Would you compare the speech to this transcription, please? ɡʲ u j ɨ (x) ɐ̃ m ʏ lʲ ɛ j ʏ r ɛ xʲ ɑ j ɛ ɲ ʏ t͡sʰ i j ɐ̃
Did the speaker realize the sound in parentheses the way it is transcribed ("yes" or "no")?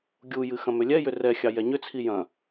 yes